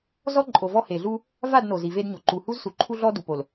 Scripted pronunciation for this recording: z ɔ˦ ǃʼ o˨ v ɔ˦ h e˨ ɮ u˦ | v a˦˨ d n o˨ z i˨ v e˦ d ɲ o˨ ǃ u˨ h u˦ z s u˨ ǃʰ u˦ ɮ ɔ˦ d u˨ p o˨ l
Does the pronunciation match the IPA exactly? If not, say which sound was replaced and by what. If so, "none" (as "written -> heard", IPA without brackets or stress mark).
none